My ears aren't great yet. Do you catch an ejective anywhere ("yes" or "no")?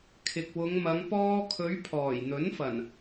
no